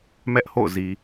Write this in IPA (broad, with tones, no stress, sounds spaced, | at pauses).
m ɛ˦ ʔ h o̰˦˨ ʊ̯ z i˨